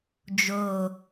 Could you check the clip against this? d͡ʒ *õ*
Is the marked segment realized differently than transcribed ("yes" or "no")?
yes